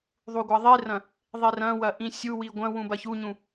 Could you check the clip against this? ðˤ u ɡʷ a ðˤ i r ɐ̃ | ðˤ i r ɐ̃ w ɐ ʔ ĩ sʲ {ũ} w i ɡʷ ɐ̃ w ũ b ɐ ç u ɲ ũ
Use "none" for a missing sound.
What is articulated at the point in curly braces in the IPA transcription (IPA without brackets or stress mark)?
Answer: u